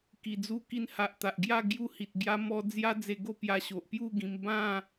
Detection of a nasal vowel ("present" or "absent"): present